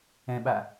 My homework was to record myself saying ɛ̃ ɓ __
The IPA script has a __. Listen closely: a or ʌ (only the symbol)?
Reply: a